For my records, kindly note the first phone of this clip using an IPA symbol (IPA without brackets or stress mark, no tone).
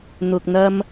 n̪